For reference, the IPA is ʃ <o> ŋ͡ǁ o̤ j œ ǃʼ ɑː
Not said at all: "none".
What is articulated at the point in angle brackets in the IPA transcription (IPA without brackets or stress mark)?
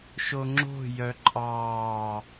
o